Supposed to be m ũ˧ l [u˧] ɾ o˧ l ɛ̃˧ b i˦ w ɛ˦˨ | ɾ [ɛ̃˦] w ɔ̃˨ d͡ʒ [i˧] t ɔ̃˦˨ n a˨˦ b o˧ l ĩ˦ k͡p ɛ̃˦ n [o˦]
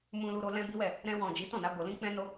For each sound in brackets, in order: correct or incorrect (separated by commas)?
correct, incorrect, incorrect, correct